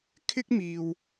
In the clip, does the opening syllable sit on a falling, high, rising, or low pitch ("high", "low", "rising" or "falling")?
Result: high